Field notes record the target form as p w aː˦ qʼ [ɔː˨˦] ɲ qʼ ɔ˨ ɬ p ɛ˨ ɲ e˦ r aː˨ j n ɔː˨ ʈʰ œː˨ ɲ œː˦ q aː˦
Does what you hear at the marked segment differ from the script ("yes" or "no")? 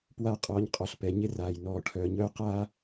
no